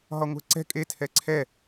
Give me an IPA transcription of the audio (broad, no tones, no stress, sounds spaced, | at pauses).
ɦ ɒ ŋʷ ɛ̤ ǀ ɛ̤ kʼ e tʰ ɛ ǀʰ ɛ